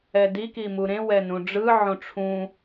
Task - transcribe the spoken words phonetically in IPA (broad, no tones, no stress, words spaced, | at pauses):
ɛdi kimuɾẽ wɛnũɖ͡ʐɯ ʕõʈ͡ʂʰũ